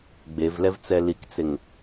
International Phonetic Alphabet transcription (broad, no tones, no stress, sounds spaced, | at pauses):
ɡ͡b e v l ɛ v t͡s ɛ l i k t͡s e ŋ